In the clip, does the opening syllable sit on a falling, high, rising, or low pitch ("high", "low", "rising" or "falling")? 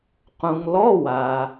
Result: low